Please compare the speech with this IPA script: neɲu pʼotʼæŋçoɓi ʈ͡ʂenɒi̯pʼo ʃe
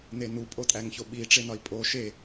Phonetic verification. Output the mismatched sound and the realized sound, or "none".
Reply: ɲ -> n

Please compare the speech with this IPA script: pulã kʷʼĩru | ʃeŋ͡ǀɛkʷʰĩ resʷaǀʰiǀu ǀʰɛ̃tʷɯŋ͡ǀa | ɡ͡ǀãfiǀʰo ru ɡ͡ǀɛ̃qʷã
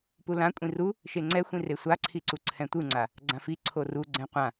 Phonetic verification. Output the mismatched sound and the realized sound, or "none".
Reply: kʷʰ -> xʷ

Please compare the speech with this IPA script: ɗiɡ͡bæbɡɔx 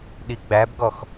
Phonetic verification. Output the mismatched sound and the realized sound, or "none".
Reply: none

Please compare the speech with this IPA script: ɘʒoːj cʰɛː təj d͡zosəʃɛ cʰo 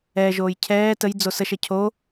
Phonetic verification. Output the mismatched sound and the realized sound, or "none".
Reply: ɘ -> ɛ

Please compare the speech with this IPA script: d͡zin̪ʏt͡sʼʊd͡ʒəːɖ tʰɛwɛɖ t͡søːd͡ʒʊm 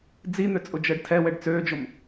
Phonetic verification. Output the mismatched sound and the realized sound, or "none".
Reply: none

